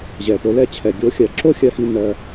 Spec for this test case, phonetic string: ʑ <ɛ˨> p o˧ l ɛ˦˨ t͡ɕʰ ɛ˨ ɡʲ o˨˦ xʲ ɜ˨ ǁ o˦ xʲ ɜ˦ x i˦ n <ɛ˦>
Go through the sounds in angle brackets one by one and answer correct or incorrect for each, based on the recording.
correct, incorrect

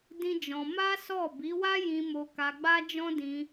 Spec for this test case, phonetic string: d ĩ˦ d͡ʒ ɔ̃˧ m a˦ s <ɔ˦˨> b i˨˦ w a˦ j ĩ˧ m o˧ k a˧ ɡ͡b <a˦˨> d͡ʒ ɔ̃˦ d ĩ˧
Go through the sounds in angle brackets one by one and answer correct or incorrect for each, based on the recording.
correct, incorrect

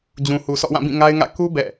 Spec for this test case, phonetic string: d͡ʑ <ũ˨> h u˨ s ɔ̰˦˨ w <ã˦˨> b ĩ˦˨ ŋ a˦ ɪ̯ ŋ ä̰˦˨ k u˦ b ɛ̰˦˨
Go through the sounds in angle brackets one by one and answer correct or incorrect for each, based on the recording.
correct, correct

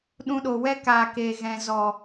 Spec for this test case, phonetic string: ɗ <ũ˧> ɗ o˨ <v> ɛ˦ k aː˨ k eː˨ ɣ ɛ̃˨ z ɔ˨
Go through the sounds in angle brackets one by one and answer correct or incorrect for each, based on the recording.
correct, incorrect

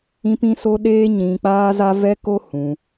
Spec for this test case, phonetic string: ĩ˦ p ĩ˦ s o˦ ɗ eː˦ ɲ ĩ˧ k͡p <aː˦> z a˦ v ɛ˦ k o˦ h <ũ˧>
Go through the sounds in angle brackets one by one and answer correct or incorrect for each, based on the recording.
correct, correct

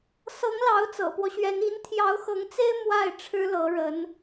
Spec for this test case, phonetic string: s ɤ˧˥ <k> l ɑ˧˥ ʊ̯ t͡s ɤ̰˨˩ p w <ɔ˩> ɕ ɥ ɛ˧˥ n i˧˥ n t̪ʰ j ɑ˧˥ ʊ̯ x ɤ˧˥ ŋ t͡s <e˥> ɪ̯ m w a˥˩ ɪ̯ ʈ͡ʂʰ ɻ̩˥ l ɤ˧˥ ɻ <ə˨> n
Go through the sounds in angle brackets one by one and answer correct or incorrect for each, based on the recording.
incorrect, incorrect, correct, incorrect

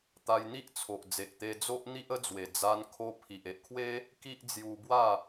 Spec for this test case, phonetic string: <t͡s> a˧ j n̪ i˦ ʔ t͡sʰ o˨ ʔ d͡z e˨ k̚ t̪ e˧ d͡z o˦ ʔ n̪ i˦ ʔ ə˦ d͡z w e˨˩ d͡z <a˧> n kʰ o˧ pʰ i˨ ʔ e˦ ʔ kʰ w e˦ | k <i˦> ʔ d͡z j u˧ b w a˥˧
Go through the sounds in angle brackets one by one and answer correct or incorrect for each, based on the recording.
incorrect, correct, correct

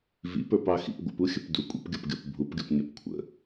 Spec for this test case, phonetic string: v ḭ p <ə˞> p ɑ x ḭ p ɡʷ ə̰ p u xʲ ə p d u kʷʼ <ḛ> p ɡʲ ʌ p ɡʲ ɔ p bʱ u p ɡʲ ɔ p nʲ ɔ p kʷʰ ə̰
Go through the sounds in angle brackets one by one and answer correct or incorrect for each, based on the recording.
correct, incorrect

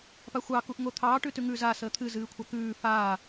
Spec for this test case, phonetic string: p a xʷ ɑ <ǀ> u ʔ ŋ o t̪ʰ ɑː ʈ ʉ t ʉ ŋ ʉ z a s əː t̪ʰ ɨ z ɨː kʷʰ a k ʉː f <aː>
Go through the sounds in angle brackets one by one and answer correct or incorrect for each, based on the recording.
incorrect, correct

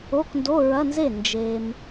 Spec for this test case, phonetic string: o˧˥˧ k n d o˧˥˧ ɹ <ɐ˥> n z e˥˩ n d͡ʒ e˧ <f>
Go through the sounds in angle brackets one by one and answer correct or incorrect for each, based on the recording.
incorrect, incorrect

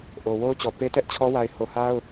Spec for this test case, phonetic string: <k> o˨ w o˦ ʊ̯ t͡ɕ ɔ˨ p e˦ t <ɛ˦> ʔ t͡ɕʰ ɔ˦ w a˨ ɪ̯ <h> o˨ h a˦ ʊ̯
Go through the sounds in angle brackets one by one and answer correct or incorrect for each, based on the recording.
incorrect, correct, correct

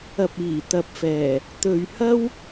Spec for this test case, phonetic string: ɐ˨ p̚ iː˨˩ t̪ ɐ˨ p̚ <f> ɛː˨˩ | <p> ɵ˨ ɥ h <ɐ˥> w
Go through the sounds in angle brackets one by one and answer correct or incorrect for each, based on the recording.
correct, incorrect, correct

